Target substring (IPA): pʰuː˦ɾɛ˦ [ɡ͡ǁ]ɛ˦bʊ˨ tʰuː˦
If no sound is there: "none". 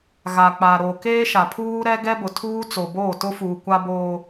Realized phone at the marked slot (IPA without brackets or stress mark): ɡ